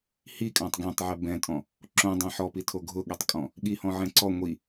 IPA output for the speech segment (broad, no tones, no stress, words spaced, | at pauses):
hikʼãtˤ ɡɛ̃tˤʕɛ bɛ̃tʼɔ̃ | ǁõdˤã ħɔpitʰo ɡʱʊɠɛtˤkʼɔ̃ | ɠihɔ̃ʕɛ̃ ǀɔ ŋʷi